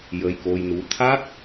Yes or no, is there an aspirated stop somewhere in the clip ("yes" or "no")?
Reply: yes